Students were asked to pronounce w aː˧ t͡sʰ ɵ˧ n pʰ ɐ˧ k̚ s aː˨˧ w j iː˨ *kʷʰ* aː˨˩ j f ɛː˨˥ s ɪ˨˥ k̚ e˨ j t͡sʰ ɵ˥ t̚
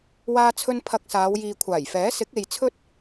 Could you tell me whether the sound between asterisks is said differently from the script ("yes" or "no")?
no